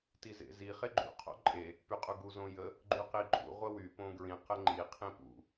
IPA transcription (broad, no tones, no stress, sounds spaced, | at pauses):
t i z ḛ z i χ e ɡ͡ǃ ṵ qʰ o̰ ǃʼ e | p y qʼ u ɡ u z õ j ə | ɡ͡ǃ y q i ǃʼ ṵ ʁʷ ə w y p õ ɡ ɹ ĩ q ə ŋ͡ǃ i qʰ ĩ p ṵ